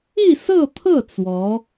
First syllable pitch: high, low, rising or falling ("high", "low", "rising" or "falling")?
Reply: falling